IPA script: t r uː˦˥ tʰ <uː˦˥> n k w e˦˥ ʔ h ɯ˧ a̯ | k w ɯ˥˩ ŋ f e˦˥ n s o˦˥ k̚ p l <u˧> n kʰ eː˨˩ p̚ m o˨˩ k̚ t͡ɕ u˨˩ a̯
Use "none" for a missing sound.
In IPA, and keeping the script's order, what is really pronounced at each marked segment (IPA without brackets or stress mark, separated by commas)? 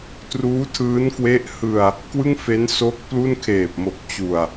ɯː˦˥, u˥˩